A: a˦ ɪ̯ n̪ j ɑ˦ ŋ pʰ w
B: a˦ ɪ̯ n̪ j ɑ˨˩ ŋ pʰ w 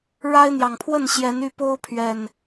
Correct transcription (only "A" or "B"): B